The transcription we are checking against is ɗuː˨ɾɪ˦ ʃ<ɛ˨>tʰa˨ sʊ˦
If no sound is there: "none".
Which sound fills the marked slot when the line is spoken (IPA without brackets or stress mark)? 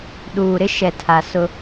ɛ˨